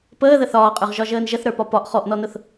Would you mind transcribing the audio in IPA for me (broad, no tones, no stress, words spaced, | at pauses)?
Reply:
pəːðə θɒːqʼə˞ʁ ʒɒʒəːnʒəθ ɾə˞pɒpɒʔ χɔʔnɔnʊθ